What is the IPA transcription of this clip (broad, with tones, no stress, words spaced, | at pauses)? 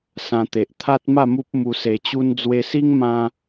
sã˧t̪e˨ʔ t̪ʰa˦t̚ ma˥˧mu˦p̚ mu˧se˧t͡ɕu˦n d͡zwe˧si˦ŋmã˧